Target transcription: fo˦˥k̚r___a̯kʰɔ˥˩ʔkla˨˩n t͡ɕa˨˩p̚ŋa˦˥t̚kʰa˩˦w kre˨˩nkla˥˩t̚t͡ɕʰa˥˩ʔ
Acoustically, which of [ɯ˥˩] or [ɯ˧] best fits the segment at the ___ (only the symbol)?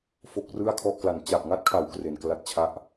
ɯ˥˩